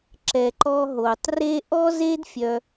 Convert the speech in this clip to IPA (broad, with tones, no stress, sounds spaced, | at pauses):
ǁ ɛ˧ ǃ ɔ˦ ɦ o˧ tˤ r e˦ ʔ ɔ˦ z e˦ d fʲ œ˧